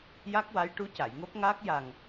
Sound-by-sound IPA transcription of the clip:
ja˦˥k̚wa˧˥j ʈu˧˥ca˨˩˨jŋo˦˥p̚ŋaː˦˥k̚ ja˨˩ŋ

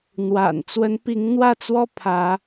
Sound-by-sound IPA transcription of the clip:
n̪wa̰˨˩n t͡swə˨˦npi˨˦ŋn̪wä˥˨t͡swɔ˦ pʰä˨˦

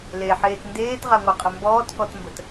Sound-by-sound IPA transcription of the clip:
leħeːt ndeːtʁaŋʷaqʼə mbɔːtkɔtmbət

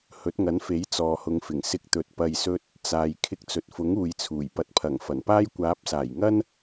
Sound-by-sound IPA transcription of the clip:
hɵ˨˥t̚ŋɐ˨˥nfe˨˥j t͡sɔː˨hʊ˨˧ŋfɪ˨˩ŋ sɪ˧k̚t̪ɵ˨t̚ pɐ˨jsɵ˧t̚ | t͡saː˨j kʰɪ˧k̚t͡sɵ˨t̚fʊ˨˥ŋ uː˨jt͡sʰuː˨˩j pɐ˨t̚pʰɐ˨˩ŋ fɐ˨˩npaː˥j kʷaː˨˥p̚saː˨˩jŋɐ˥n

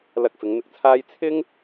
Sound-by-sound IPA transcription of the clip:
lɐ˧k̚fɪ˨˧ŋn̪ɪ˧k̚t͡sʰaː˥j t͡sʰɪ˥ŋ

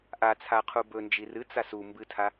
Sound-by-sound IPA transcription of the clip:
ʔat͡sʰa qʰubɵnd͡ʒi rɨt͡sas u mbɨtʰa

